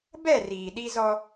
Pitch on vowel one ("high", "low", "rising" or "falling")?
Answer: falling